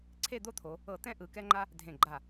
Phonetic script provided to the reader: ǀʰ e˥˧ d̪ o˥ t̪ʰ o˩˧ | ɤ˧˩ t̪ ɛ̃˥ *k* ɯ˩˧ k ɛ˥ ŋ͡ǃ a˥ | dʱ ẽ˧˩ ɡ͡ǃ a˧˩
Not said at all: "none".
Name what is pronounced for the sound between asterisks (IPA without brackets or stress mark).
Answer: ʔ